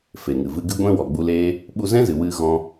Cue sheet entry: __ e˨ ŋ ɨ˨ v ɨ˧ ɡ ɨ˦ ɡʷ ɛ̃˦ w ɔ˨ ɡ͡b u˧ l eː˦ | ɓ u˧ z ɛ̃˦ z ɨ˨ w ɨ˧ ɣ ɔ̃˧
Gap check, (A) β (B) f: B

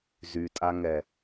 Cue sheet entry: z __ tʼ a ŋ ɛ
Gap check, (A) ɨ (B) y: B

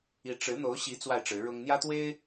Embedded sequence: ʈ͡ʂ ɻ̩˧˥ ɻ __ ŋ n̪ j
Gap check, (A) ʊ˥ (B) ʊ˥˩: A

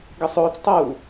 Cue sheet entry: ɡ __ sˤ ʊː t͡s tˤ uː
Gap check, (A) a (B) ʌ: B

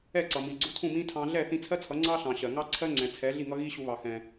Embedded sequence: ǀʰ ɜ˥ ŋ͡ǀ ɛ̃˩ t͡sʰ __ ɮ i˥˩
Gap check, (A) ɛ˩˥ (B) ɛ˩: A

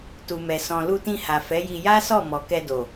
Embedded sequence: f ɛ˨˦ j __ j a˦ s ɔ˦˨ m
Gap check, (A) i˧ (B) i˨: A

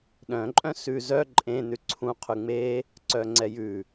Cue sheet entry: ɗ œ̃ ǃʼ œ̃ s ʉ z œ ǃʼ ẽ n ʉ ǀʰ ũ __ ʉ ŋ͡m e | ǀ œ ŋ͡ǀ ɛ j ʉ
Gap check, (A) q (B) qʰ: B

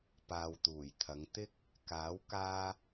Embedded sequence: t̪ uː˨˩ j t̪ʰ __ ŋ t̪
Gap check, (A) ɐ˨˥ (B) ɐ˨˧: B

